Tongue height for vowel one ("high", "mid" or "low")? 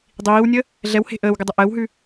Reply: high